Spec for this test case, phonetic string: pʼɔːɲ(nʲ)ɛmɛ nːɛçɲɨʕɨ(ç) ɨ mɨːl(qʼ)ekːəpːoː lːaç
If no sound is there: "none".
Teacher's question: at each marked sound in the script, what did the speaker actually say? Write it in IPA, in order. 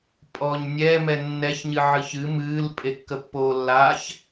nʲ, ç, pʼ

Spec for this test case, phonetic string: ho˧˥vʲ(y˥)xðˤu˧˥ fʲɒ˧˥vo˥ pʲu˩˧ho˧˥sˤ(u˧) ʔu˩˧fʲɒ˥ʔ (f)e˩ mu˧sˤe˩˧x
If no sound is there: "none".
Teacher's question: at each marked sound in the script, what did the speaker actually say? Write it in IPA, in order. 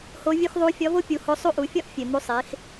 u˥, u˥, fʲ

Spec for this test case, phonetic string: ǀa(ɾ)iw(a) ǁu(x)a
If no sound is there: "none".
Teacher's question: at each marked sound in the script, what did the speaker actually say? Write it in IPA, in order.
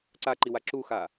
ǃ, a, x

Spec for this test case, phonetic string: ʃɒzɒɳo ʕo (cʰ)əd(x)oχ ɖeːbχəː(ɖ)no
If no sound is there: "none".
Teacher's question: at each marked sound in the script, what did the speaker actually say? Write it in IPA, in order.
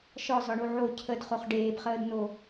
cʰ, χ, d

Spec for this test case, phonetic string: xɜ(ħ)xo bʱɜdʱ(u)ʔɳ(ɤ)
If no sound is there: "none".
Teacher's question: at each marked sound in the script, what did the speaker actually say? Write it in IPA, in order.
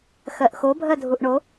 ʔ, u, o

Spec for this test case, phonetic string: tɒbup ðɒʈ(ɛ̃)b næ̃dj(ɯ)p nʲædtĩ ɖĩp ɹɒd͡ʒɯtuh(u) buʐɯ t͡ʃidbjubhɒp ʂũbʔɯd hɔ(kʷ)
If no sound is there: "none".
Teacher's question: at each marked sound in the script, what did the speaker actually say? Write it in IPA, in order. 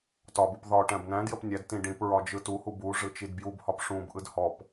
æ̃, ə, u, p

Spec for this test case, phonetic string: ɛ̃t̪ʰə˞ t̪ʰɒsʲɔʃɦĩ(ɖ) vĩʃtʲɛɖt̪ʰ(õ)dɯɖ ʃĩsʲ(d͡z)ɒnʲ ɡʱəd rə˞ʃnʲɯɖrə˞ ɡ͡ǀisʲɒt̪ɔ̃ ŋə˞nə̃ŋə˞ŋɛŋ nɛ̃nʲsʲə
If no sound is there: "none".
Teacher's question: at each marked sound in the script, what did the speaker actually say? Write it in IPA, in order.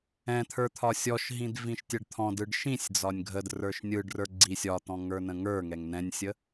d, ɔ̃, d͡z

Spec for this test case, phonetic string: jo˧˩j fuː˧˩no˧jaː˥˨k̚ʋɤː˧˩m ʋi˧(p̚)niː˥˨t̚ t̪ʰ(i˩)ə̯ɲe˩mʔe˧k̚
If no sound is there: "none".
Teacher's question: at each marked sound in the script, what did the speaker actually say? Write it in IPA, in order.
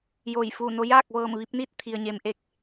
p̚, i˩

